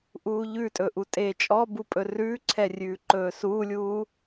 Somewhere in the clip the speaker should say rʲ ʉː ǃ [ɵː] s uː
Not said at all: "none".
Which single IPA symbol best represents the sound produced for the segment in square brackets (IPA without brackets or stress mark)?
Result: ɵː